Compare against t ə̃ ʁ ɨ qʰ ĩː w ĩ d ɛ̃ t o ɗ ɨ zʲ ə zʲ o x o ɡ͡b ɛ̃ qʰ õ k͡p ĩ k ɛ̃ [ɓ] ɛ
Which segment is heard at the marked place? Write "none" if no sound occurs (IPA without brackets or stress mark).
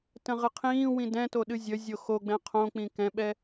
ɓ